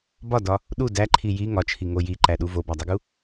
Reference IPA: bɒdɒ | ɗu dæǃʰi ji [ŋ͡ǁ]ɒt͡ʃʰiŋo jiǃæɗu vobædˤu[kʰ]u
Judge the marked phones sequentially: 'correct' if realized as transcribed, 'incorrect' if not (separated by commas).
incorrect, incorrect